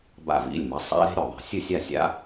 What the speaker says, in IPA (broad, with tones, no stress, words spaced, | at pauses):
ba̰˧˩vḭ˩˧˩lʲmɐ˩˥ sˤa̰˦˥ɾe̤˦˥ ɾʲo˧˩ðˤe̤˧˩ sʲɨ˥˨sʲa˥˨sʲa̰˦˥